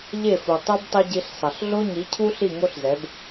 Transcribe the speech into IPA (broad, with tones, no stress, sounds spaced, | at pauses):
ʎ e˦˨ f u˨ tˤ u˦ b tˤ e˦ ɟ i˧ ɬ sˤ ʌ˨ ɬ ɮ o˦ ɲ i˨˦ cʰ u˦ ɬ i˦˨ ŋ o˦ ɬ z ɛ˨˦ b